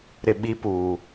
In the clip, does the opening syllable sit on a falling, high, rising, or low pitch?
low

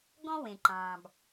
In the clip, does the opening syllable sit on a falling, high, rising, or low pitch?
high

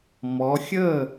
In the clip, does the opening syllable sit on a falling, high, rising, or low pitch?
rising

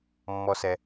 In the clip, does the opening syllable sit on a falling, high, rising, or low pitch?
low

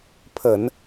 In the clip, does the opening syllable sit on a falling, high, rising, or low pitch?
low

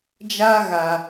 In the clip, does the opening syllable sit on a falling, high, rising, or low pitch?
high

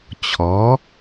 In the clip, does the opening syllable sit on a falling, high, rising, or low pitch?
rising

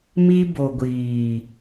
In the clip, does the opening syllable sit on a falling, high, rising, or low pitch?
high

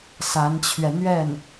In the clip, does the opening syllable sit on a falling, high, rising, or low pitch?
rising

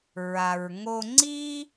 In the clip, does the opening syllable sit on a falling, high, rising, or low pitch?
low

